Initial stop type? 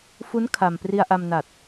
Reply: aspirated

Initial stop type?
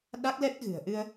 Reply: implosive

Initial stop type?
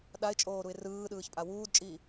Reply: implosive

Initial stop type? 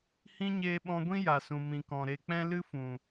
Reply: implosive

